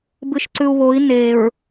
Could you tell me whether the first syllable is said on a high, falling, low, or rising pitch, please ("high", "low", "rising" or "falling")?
low